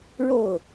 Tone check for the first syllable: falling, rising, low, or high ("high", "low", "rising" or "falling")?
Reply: falling